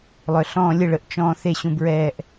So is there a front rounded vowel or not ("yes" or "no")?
yes